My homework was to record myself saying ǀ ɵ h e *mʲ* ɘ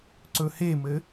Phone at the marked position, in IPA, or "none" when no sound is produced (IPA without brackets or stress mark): m